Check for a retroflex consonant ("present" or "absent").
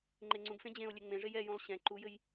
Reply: present